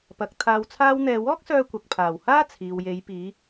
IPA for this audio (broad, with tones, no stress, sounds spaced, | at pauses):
p ɐ˨˥ k̚ t̪ʰ aː˧ w t͡sʰ aː˥ w n̪ ɛː˧ w ɔː˥ k̚ s œː˧ kʷ ɐ˨ k̚ pʰ aː˨˩ w h aː˥ t͡sʰ iː˨ w j e˨˧ j p iː˨˧